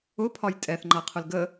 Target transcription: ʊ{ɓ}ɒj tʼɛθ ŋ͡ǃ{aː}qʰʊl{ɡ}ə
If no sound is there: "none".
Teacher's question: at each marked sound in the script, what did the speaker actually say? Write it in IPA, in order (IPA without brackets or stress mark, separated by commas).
pʰ, a, ɡ